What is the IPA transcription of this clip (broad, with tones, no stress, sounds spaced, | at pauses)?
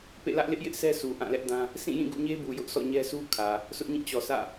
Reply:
p ḛ˦˨ l ä˦ ʔ l ɪ˦ ʔ j ɪ˦ ʔ sʰ ɛ˦ s u˨ ʔ ã˦˨ l ɛ˦ ʔ d ã˦ | s ĩ˦˨ j ĩ˦˨ ɡ ṵ˦˨ ɲ e˦ b u˨ j ʊ˦ ʔ sʰ ɔ̰˦˨ ɲ ɛ˦ sʰ u˦ kʰ ä˨ | sʰ ʊ˦ ʔ ɲ ĩ˦˨ t͡ɕ ɔ˨ sʰ ä̰˦˨